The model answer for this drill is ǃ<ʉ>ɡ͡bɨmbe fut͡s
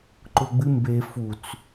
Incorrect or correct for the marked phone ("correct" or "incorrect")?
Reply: incorrect